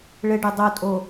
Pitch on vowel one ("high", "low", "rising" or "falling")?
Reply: low